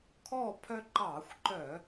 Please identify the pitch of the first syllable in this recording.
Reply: falling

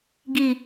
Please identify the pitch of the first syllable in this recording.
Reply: low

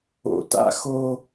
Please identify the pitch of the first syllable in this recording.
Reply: low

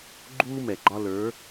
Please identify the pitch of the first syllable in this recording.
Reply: high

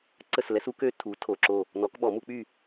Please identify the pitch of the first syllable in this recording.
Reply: falling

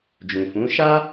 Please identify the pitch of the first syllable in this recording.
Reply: low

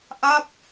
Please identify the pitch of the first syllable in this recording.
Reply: falling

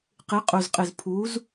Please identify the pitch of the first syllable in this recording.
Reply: rising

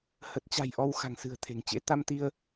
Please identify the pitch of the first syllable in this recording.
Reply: low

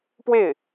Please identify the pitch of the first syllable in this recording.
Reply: falling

